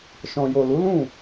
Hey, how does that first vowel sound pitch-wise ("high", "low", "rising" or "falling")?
low